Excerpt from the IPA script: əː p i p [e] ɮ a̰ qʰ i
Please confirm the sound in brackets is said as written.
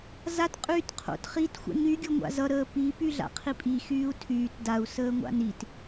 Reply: no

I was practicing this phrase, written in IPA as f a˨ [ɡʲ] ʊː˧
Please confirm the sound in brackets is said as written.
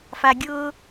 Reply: yes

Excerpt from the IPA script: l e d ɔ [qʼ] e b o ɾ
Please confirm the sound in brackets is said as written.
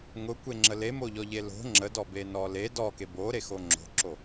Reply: no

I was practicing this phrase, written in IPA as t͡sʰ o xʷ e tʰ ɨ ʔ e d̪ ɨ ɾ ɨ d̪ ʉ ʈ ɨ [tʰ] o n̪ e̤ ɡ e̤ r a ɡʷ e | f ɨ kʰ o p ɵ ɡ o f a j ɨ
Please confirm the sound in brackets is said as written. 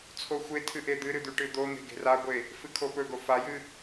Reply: no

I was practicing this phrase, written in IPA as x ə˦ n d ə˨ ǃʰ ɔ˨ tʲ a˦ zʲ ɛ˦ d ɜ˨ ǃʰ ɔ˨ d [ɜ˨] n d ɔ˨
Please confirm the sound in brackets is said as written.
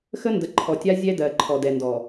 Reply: no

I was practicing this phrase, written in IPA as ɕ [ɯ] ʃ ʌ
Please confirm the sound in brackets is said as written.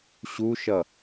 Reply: no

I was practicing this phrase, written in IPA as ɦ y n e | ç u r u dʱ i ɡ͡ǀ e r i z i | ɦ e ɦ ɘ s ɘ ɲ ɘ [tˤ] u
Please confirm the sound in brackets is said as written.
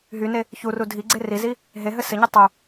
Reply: yes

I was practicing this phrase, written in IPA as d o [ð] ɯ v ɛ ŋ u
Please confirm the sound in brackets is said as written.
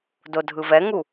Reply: no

